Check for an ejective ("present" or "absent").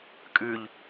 present